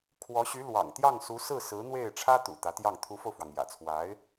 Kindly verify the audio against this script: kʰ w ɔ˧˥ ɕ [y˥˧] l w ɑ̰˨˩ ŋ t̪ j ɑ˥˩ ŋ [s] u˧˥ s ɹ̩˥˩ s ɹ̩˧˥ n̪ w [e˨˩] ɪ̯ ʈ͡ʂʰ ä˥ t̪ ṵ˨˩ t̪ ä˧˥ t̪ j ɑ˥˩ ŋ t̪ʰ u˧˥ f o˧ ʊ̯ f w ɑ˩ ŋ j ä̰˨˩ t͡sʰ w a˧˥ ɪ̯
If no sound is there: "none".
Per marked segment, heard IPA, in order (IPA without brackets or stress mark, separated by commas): y˧˥, s, e˥˩